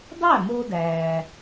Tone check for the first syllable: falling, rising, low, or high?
falling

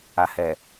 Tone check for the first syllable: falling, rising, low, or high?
low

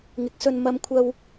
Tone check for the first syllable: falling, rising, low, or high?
rising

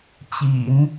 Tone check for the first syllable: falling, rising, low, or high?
low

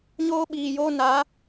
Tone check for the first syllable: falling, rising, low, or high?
high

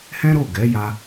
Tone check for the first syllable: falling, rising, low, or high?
high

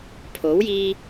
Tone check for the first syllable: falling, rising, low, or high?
rising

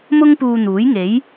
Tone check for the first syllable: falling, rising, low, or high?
high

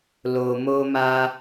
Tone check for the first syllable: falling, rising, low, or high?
low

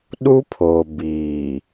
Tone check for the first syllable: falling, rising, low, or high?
high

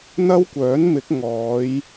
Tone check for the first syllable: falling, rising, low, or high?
high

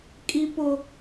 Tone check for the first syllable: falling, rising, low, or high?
high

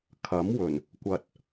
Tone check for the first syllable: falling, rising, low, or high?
rising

